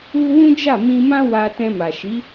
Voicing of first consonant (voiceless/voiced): voiced